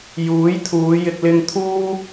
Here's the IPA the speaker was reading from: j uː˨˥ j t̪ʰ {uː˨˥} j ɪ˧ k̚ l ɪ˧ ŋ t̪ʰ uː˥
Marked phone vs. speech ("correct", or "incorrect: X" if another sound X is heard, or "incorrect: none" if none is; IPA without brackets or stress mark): incorrect: uː˨˧